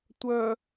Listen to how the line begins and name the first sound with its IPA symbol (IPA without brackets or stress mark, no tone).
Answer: tʷ